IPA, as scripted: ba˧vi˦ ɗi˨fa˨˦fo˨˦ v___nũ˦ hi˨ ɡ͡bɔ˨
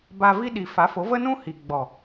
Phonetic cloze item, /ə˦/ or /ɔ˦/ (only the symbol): ə˦